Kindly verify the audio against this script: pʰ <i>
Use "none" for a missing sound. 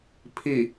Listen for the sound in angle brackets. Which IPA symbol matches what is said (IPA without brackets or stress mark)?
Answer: i